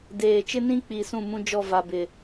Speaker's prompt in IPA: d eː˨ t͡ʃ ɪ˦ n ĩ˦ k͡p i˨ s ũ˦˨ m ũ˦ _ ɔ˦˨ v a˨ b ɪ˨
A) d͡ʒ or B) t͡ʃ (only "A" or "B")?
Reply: A